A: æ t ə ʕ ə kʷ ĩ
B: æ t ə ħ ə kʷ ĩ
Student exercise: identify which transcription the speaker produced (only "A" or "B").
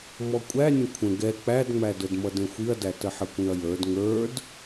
B